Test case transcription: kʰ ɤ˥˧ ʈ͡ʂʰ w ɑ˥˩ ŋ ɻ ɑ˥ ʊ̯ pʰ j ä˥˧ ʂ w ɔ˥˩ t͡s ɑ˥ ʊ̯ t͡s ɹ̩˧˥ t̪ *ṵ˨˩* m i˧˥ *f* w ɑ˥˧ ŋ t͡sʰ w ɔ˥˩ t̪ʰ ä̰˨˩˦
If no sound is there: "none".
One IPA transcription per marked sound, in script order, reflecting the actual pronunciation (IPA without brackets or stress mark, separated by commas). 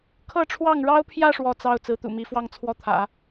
ṵ˨˩, f